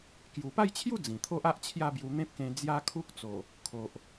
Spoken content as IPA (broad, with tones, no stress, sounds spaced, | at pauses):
k j u˨˩ p a˥˧ j t͡ɕʰ j u˥˧ d͡z ĩ˨˩ t̪ʰ o˦ ʔ a˦ ʔ t͡ɕʰ j a˥˧ b j u˧ n̪ ẽ˦ p̚ k ẽ˧ d͡z j a˦ kʰ u˦ k̚ t͡s o˨˩ | kʰ o˨ ʔ